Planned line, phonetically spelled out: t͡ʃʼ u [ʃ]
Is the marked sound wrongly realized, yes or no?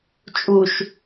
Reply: no